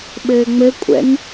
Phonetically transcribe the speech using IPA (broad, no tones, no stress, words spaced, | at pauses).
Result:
ɓɘːŋ͡mɘkʷʼɛ̰n